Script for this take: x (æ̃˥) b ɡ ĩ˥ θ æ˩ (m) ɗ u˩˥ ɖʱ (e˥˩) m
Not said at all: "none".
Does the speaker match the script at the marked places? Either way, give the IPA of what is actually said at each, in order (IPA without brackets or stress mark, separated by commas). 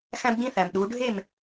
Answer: æ̃˥, m, e˥˩